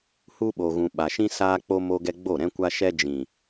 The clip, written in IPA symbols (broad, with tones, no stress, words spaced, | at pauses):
hu˧ɓo˨ɣũ˨ ɓa˨ʃĩ˧ saː˧k͡po˧ mo˧ɡɛ˧ɡ͡bo˦˨ ɾɛ̃˧kʷa˧ʃɛ˧ d͡ʒĩ˨